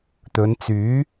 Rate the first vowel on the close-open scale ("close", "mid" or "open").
mid